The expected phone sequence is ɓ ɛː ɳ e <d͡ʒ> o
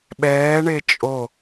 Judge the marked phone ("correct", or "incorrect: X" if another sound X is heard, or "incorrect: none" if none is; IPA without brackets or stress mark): incorrect: t͡ʃʼ